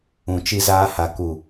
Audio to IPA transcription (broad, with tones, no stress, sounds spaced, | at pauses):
ũ˨ t͡ʃ i˧ z aː˧ h a˨ k u˨